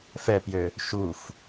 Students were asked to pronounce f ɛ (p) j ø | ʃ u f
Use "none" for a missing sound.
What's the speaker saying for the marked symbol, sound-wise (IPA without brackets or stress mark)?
p